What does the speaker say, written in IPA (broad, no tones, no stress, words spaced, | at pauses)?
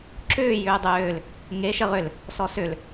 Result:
ǁʏː jʏːdˤʏːl | ŋe ʃəʁʏl | sɔsʏl